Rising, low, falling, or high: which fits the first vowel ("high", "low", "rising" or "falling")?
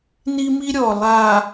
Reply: high